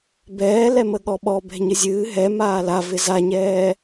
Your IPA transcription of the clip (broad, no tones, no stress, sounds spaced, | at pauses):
b ɛː l ɛ m ə ɠ ɔ ɓ ɔ b ɛ̤ ɲ ɨ zʲ ɨː ɦ ɛ m aː l a v ɪ z a ɲ ɛː